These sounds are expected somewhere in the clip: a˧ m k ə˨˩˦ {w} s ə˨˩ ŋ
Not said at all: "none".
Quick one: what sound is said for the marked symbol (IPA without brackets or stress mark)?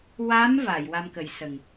j